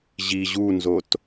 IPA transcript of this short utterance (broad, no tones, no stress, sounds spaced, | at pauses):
ʑ i ʑ u n z o t